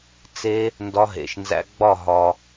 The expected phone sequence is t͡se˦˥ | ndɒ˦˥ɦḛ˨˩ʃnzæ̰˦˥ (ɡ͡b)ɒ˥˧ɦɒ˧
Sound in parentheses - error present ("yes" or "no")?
no